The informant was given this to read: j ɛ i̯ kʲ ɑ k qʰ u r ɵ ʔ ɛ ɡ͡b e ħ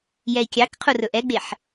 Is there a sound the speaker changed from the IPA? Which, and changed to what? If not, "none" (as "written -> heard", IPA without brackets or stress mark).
none